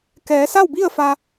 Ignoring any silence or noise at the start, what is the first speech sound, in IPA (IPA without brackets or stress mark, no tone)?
k